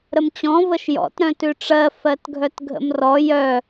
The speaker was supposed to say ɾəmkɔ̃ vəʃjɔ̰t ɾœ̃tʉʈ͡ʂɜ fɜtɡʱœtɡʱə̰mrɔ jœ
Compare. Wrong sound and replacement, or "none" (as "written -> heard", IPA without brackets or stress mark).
k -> t͡ɕ